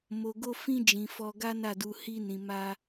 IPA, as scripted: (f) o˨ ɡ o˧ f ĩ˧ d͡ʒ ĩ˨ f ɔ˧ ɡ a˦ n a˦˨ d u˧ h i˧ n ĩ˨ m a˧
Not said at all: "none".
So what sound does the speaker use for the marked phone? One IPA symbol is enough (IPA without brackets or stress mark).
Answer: m